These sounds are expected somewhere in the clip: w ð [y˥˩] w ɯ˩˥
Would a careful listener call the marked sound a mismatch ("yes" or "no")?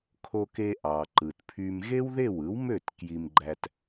yes